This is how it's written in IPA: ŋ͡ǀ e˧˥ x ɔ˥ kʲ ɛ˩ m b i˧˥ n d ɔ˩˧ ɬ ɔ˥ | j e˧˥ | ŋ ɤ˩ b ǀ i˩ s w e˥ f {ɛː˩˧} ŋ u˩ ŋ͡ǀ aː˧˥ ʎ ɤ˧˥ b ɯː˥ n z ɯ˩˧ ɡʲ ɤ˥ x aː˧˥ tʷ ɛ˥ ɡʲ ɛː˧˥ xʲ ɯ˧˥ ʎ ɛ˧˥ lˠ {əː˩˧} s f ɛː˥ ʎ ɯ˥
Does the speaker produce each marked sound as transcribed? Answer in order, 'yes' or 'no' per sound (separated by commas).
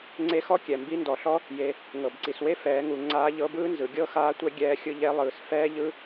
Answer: yes, no